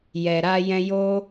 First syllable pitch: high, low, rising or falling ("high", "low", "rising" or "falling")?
low